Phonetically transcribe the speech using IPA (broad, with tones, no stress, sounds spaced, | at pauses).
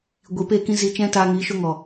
ɡʷ i˨ p eː˦˨ k ĩ˦ z i˧ t͡ʃ ɛ̃˦ t aː˧ ŋ iː˨˦ ʃ o˦ ŋ ɔ˨